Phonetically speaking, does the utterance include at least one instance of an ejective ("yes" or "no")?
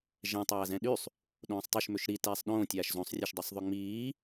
no